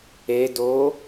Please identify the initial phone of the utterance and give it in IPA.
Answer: e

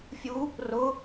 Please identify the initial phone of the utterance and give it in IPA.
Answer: fʲ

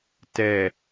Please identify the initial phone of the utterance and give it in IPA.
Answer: t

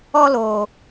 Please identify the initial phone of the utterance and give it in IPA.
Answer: ɔ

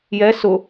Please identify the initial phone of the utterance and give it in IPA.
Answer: j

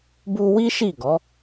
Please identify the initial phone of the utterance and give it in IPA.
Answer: b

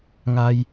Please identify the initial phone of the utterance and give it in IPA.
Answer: ŋ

